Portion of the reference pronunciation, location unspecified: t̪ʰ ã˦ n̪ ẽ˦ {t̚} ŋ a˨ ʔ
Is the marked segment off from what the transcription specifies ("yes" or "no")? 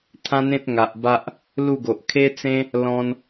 no